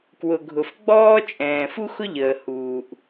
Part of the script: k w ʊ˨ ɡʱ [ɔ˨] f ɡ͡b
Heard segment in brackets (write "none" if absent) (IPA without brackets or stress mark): ʊ˨